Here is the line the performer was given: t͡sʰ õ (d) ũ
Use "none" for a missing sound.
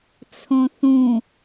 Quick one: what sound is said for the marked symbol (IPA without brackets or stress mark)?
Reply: θ